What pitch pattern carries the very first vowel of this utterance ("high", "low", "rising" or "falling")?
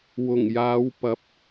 low